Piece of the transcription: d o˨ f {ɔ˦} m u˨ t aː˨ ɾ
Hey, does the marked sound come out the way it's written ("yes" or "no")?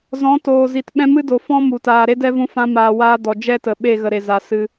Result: no